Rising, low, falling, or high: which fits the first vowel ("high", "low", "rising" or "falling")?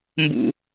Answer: low